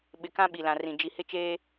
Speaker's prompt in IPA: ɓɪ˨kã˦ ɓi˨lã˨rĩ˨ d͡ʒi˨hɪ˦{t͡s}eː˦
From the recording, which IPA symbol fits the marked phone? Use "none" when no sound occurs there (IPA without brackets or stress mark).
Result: t͡ʃ